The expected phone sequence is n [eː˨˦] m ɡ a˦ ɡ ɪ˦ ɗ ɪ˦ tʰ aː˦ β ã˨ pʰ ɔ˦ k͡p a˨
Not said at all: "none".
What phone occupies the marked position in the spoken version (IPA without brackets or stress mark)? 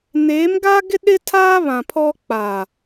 eː˨˦